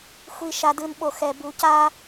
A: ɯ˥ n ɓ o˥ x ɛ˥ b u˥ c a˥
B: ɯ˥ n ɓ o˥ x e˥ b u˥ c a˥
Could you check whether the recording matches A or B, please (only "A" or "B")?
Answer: A